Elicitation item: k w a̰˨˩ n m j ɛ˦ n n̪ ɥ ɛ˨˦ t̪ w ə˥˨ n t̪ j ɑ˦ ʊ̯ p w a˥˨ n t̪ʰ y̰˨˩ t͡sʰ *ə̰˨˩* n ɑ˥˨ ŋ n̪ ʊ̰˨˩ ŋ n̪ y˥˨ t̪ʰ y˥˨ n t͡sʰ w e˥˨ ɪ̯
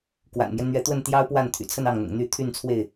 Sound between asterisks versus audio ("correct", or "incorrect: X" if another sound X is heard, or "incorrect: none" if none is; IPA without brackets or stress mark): incorrect: ə˥˨